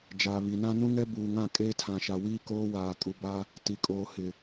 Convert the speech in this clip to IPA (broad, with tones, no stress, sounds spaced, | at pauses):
d͡ʒ aː˨ β i˨ n ã˦ n ũ˦ ŋ ɛ˦ b uː˨ ŋ ã˦˨ kʼ eː˦ tʰ ã˨ ʃ a˨ w iː˦ k oː˦ w aː˨ kʼ u˨ b a˦ | t i˨ kʼ oː˨ h ɪ˨